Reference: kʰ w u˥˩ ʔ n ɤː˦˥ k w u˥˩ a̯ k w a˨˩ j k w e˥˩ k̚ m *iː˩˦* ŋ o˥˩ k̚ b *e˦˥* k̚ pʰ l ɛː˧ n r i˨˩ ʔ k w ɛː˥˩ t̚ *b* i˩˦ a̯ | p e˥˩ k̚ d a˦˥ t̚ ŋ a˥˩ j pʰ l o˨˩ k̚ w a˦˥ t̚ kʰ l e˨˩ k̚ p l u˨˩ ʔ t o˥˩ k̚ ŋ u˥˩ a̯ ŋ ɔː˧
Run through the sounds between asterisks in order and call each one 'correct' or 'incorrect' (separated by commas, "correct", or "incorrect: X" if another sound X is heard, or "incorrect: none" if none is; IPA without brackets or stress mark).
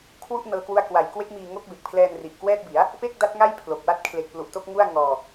incorrect: iː˧, incorrect: e˨˩, correct